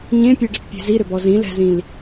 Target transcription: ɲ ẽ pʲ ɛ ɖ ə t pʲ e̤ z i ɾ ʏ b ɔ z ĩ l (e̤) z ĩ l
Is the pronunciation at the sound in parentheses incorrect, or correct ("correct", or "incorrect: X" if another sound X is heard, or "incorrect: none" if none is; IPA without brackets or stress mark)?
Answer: incorrect: ɛ̤